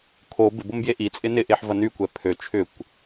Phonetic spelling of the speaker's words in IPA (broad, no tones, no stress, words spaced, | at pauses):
kʰo bɪbombje ʔit͡sʼɪ nɪʔeħvɐ nykʷɛ pʰø t͡ʃʰʏkʷ